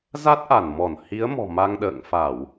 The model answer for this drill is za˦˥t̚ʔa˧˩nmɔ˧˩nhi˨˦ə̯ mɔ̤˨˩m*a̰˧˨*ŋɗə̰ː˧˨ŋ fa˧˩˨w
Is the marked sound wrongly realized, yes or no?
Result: yes